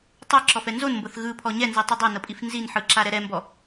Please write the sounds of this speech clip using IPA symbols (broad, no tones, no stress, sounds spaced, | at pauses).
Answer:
tˤ ɛ ǁ ɔ f ɛ n z o n m b ɤ θ ɣ ɯ pʰ ɔ ɲ ɛ n z i tˤ ɯ dˤ a n ɤ pʼ i f n z i n ħ ɯ ǁ a ɾ ɛ ɾ ɛ m b ɔ